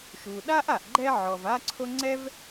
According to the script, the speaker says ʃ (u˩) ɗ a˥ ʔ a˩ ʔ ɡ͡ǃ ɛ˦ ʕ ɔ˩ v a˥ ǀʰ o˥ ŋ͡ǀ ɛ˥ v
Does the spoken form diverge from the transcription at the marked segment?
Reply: no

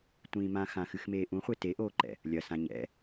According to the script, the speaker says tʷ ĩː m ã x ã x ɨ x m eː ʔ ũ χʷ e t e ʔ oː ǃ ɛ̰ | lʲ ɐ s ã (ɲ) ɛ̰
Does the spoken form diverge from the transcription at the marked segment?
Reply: no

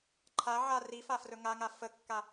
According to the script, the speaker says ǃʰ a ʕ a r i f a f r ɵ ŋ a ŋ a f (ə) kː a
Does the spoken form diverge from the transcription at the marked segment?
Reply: no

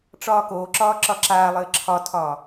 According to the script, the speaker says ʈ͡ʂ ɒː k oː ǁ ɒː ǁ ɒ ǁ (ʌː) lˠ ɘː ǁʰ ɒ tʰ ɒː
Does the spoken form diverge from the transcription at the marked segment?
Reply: yes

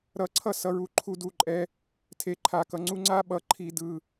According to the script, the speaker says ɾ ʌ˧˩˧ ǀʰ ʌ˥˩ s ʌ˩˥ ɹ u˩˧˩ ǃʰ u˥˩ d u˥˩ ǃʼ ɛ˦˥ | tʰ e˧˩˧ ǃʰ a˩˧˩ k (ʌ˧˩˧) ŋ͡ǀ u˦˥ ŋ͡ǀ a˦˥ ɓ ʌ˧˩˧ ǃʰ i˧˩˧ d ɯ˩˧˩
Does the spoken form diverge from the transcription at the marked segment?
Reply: no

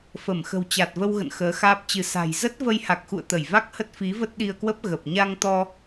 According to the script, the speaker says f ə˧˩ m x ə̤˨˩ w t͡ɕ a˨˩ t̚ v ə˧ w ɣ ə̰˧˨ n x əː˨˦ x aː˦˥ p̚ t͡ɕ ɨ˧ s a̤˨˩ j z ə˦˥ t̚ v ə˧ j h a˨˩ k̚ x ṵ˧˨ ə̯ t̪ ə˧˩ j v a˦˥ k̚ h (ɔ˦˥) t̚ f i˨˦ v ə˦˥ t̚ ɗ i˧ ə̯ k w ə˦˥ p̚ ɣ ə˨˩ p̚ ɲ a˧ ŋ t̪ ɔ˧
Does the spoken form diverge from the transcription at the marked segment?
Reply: yes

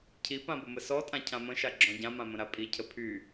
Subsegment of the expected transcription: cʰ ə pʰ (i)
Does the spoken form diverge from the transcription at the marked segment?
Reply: yes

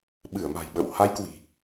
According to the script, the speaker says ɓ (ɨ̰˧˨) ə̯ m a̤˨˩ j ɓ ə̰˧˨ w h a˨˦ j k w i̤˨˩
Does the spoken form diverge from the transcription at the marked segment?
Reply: yes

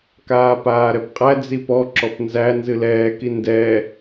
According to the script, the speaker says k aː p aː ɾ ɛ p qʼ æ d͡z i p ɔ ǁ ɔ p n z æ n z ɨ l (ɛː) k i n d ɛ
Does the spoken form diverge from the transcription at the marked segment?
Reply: no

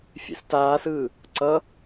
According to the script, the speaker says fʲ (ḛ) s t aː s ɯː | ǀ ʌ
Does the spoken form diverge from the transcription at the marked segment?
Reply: no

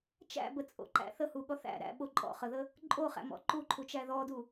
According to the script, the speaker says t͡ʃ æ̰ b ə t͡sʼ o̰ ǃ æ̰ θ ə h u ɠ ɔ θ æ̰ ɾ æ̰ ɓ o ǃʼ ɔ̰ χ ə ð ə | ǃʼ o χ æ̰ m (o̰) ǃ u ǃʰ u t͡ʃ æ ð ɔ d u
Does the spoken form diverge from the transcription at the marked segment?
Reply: yes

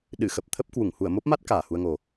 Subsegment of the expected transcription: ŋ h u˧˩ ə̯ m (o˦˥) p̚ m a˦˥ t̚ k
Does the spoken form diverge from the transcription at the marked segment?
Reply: no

